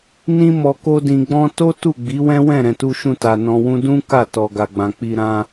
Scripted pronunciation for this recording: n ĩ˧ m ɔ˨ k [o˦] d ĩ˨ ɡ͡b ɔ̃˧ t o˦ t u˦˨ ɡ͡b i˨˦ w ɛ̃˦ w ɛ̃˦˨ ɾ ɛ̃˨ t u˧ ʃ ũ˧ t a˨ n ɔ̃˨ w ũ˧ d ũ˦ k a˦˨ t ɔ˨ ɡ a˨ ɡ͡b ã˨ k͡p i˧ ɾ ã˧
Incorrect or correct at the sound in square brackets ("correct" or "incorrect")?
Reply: incorrect